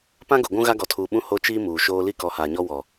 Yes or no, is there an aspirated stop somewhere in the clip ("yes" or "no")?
yes